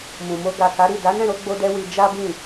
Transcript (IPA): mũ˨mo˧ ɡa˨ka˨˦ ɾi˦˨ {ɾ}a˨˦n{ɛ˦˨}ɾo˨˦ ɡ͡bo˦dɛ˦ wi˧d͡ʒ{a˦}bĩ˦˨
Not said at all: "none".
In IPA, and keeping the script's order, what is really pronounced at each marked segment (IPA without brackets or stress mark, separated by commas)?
d, ɛ̃˦˨, a˦